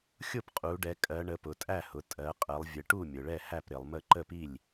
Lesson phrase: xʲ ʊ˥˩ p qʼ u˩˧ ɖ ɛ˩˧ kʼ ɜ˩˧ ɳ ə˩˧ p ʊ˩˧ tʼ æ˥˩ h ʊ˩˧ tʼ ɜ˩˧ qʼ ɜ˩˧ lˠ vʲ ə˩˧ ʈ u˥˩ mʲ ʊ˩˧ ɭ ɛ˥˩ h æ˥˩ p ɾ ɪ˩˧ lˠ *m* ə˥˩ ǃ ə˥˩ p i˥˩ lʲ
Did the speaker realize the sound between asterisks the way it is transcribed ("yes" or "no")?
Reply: yes